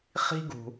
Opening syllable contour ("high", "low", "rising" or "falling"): high